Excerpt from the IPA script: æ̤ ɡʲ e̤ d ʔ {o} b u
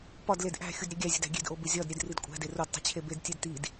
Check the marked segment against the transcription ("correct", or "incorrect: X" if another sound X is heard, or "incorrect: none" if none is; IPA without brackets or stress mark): correct